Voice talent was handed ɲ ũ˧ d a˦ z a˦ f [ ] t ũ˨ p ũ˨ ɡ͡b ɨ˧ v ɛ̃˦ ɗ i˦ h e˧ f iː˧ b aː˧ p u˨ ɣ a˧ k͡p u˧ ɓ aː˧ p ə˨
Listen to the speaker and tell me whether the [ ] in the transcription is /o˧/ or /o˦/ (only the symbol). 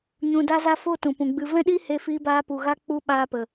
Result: o˦